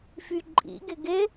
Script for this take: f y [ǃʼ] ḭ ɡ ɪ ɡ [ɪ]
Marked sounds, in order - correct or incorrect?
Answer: correct, correct

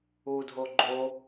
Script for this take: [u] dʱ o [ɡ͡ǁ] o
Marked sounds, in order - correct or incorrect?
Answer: correct, incorrect

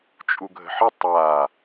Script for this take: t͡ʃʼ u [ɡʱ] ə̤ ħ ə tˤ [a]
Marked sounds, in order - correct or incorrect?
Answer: correct, correct

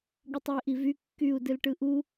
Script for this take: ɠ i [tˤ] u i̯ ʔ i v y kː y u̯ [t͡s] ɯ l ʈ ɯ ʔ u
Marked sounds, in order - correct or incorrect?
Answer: correct, incorrect

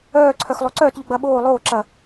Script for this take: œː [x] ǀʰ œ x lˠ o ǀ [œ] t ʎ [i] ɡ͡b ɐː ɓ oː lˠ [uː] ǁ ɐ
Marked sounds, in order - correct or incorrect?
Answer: incorrect, incorrect, incorrect, incorrect

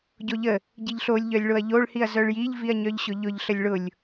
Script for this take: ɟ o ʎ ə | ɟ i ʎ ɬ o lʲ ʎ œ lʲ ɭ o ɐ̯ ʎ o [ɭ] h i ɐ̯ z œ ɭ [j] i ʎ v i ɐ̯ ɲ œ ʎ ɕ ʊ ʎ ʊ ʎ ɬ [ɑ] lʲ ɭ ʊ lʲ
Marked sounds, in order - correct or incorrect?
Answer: correct, correct, incorrect

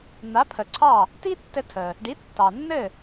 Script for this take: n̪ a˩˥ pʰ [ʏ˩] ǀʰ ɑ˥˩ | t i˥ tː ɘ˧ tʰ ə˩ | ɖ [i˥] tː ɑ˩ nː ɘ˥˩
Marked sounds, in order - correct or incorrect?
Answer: incorrect, incorrect

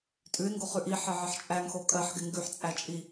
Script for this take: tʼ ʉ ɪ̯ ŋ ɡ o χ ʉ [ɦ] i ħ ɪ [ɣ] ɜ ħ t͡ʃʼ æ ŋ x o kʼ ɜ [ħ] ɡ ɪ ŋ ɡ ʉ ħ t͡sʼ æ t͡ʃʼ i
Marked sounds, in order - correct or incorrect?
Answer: incorrect, incorrect, correct

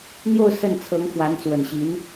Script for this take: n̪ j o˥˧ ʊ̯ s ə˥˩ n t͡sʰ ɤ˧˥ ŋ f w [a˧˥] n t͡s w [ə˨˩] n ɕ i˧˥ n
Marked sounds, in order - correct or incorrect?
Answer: correct, correct

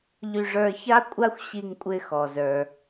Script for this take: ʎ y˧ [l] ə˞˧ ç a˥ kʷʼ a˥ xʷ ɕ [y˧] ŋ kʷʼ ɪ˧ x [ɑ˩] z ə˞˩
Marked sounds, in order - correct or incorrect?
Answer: incorrect, incorrect, incorrect

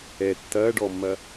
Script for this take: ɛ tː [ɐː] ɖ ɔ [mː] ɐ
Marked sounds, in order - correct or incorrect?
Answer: correct, correct

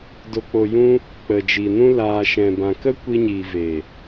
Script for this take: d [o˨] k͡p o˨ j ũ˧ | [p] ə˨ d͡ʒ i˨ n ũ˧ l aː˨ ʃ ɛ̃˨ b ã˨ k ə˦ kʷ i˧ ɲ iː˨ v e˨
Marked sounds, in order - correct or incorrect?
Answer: correct, incorrect

